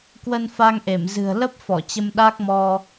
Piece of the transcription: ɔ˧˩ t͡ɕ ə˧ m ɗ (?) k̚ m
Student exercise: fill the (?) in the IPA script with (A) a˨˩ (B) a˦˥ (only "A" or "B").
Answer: B